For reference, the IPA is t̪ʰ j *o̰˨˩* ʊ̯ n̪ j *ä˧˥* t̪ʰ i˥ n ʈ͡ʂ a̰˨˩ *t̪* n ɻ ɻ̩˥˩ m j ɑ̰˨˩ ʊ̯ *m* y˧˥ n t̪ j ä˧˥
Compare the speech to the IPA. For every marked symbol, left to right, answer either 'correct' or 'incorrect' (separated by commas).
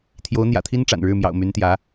incorrect, incorrect, incorrect, correct